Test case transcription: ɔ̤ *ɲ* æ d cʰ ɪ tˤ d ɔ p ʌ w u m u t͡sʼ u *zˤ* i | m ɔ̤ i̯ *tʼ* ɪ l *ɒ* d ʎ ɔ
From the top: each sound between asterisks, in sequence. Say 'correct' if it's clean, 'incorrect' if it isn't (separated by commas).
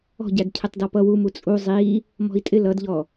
incorrect, correct, correct, incorrect